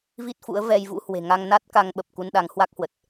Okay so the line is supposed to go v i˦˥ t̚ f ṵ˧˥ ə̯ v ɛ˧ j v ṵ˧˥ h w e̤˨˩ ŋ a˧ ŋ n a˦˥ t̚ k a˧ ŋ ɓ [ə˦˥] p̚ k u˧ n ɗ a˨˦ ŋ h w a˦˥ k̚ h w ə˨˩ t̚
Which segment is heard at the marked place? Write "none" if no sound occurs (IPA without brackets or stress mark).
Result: ə˨˩